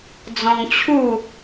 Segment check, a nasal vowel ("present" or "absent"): present